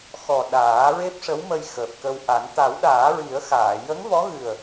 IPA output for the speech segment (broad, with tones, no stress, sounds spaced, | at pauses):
x ɔ˨˩ ɗ aː˨˩˦ ɹ e˦˥ p̚ ʂ ə˧˥ w m ə˧ j x əː˨˩ p̚ k ə˧ w ʔ a˨˩˦ n t̪ a˨˩˦ w ɗ aː˨˩˦ ɹ i˨˩˦ ə̯ x aː˨˩˨ j ə˧˥ ŋ v ɔ˧˥ ɣ ɨ˨˩ ə̯